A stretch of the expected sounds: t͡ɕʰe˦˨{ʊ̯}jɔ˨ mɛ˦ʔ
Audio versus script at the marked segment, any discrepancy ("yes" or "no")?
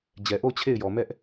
yes